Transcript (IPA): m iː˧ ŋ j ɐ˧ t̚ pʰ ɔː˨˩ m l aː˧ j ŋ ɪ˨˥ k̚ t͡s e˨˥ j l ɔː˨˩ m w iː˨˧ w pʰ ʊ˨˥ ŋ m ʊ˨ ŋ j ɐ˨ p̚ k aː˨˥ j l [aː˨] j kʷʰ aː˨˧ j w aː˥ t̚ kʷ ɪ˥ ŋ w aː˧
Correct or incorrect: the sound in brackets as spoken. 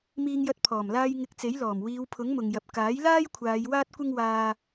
incorrect: aː˥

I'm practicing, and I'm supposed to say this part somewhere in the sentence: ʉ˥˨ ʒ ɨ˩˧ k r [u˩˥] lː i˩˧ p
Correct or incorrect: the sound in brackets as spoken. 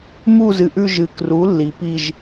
correct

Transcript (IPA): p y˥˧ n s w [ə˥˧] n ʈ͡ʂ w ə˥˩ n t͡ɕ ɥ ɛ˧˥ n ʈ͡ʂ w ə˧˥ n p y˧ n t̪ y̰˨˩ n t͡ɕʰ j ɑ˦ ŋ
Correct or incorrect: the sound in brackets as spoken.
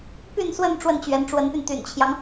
correct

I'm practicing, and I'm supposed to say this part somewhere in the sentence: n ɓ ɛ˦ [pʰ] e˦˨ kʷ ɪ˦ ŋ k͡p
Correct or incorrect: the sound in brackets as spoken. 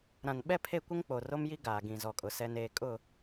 correct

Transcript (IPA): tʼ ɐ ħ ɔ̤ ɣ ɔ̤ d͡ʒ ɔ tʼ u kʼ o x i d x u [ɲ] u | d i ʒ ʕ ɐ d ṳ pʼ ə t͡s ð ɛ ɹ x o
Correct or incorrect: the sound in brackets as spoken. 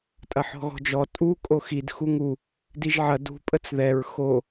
incorrect: ŋ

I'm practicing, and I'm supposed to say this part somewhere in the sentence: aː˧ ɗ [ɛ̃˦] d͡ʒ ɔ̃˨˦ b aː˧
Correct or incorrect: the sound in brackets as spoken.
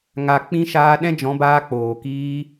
correct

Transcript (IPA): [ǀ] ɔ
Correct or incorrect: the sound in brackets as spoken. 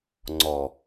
incorrect: ŋ͡ǀ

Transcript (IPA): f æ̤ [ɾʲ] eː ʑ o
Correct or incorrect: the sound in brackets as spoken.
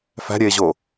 correct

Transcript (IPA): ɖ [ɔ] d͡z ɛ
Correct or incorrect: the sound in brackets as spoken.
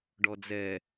correct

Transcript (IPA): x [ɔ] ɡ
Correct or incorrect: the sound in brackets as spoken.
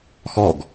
correct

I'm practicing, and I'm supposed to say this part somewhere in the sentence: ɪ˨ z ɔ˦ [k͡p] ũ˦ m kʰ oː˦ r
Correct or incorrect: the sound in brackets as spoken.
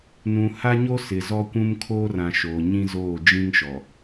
incorrect: kʷ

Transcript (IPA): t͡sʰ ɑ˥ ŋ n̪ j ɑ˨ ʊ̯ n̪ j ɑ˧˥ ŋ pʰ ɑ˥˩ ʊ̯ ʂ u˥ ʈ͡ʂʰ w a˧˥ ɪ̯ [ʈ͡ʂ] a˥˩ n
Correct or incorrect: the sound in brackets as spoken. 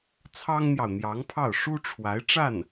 correct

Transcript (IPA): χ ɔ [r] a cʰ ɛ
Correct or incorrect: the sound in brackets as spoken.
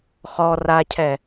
correct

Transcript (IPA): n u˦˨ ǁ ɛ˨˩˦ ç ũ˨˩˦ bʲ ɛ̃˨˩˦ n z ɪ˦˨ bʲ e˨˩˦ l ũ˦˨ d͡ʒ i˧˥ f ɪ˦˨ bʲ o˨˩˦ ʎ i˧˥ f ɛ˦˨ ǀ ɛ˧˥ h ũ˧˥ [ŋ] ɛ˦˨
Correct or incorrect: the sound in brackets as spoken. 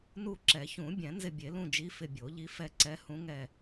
correct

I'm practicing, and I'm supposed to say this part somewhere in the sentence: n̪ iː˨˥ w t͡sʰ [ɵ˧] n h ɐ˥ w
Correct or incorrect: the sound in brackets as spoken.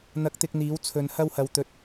correct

